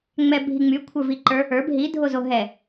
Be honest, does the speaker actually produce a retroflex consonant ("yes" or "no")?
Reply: no